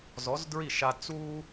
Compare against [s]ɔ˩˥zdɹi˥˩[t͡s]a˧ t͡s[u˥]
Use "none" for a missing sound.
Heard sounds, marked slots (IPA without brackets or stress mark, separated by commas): z, ʃ, u˥